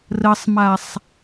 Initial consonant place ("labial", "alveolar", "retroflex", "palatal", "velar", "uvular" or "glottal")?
alveolar